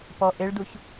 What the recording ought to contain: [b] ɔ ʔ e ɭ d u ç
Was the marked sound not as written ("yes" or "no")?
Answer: yes